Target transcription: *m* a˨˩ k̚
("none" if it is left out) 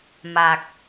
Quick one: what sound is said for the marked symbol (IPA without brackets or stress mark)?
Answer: m